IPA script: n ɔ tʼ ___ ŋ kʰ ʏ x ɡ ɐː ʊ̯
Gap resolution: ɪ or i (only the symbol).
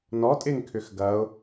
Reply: ɪ